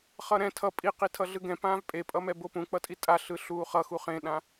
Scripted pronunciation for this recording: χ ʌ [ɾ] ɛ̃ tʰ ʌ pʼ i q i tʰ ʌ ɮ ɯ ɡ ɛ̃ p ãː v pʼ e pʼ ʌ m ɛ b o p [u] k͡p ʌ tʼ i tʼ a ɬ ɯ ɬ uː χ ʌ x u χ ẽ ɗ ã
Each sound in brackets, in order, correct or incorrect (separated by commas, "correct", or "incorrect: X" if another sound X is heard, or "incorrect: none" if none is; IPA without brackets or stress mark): correct, incorrect: ũ